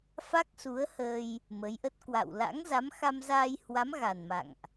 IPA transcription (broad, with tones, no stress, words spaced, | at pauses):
fa˦˥k̚su˨˦ə̯həː˧j | mə˨˦jʔə˦˥t̚ kwa̰˧˨w la̰˧˥ŋza˨˦m xa˧mzaː˧jhwa˨˦m ɣa˨˩nma̰˧˨ŋʔ